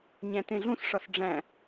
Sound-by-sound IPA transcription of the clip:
ɲæ̃tẽɮũsʂɒs ɖ͡ʐæ̃

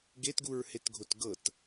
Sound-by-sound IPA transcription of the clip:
ɡetɡuɹhetɡʱot ɡɤt

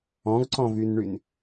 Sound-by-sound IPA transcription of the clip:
ɔ̃ɡǀɔ̃vynɳyn

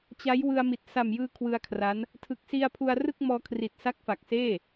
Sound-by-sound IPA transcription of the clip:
t͡ɕa˦˥j wɯ˧a̯mi˨˩t̚ sa˨˩mjɯː˧ kʰwɯ˧a̯kʰra˦˥n | tʰɯ˨˩k̚ si˧a̯pʰu˧a̯rɯ˥˩k̚ mɔː˧kʰri˨˩t̚sa˦˥k̚ fa˨˩k̚seː˥˩

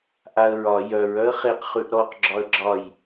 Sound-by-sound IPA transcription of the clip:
ʔaə̯ɹɒ jœɹ œə̯χeq χʉʔɾɔq ɡ͡ǁɒə̯ɡ͡ǁɒj

